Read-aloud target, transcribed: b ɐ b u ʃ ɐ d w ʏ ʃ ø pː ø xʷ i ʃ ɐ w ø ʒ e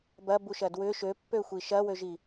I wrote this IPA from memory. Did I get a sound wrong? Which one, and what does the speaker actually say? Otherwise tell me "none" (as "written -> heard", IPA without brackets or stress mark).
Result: e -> i